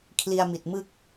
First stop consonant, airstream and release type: aspirated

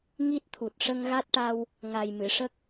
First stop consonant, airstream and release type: plain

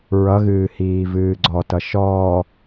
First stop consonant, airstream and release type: click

